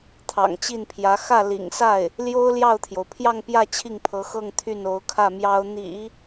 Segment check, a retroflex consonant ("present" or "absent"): absent